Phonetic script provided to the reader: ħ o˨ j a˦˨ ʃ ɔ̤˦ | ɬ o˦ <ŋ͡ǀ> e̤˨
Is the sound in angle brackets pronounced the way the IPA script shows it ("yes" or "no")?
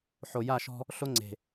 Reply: yes